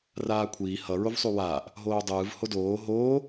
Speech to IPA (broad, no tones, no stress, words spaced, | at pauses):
raːkʷʰiː hʌ ɹovsˤuwaːʔ | ɦoːdˤɯːv hodoː ɦoː